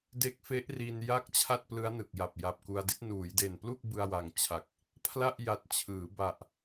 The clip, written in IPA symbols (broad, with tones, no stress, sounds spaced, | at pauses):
d e˦˥ k̚ f e˦˥ ʔ r i˧ n j a˦˥ k̚ t͡ɕʰ a˥˩ t̚ p l ɯ˦˥ a̯ n ɯ˨˩ k̚ j a˨˩ p̚ j a˨˩ p̚ k u˧ a̯ d i˦˥ t̚ n uː˩˦ j d e˨˩ n p l u˥˩ k̚ b ɯ˧ a̯ w a˨˩ ŋ t͡ɕʰ a˨˩ k̚ | pʰ l a˥˩ ʔ j a˨˩ t̚ t͡ɕʰ ɯː˩˦ b a˨˩ ʔ